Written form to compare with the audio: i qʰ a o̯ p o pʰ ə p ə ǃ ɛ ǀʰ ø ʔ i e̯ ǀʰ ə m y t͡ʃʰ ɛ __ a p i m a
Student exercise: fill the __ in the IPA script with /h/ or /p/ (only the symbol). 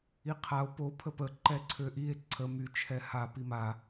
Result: h